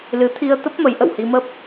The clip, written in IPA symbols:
lɨ˨˦t̪ʰi˧ə̯t̪ə˦˥p̚ mə˨˦jʔə̰˧˨whi˧mə˦˥p̚

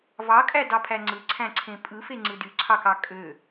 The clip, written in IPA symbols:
vɑkʼædɑpʰæ ŋ͡ǀɯǀʰæ̃ǀʰẽ pʼɯfeŋ͡ǀɯ dyǀʰɑkɑ kʼø

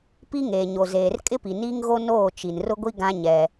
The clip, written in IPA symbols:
pi˦ŋeː˨ɲo˨zeː˨r kʼɪ˦pi˨niː˦ŋ ɣo˦noː˦˨ t͡ʃi˨n rʊ˦ɡʷi˦ ɡã˦ ɲɛ˦

